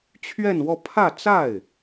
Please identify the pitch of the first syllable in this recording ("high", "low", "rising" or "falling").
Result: falling